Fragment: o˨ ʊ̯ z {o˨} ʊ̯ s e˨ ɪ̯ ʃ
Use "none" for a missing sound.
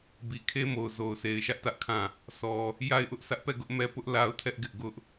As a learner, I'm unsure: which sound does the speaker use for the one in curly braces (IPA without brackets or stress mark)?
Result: o˨